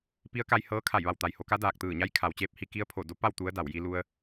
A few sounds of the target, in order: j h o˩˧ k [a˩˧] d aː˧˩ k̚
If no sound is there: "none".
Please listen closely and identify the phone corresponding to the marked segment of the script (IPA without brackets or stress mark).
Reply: a˧˥